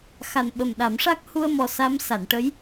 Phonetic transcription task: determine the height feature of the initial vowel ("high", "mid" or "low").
low